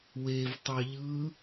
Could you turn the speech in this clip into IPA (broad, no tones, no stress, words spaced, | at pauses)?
wev tˤɑʎɯ